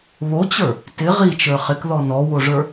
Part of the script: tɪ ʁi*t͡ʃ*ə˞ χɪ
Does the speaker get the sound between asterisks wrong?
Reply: no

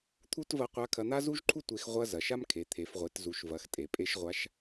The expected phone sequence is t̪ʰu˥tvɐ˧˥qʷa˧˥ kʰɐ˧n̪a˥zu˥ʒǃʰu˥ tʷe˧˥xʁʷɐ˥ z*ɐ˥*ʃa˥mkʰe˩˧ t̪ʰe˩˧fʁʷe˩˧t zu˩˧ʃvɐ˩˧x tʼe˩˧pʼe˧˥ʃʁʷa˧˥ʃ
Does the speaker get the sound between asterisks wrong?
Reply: yes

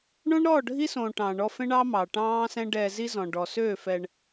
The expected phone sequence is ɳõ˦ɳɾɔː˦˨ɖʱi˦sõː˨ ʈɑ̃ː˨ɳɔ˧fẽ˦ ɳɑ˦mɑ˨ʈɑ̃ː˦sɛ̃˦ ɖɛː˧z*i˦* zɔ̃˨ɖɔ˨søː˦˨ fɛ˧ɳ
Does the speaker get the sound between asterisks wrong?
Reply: no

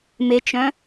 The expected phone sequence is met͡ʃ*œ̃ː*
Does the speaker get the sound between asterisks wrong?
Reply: yes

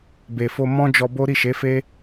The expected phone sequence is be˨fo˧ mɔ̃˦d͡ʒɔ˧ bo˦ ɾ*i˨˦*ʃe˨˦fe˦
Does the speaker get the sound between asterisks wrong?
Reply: yes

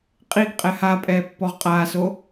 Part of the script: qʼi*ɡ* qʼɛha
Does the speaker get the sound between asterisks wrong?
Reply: no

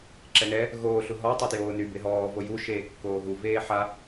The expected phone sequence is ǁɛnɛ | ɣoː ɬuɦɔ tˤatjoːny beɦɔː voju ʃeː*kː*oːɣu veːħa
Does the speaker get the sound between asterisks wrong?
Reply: no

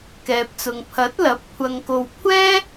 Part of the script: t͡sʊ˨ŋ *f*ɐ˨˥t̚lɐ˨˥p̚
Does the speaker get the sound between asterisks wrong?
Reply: yes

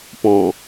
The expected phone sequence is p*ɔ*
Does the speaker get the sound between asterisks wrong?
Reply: yes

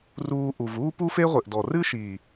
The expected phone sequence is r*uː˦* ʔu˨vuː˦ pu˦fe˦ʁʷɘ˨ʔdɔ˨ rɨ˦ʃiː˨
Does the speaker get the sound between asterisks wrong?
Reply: yes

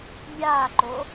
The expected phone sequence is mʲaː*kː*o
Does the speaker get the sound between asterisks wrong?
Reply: yes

